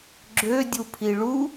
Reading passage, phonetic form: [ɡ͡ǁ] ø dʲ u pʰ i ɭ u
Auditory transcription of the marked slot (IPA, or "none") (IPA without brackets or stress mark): ɡ͡ǁ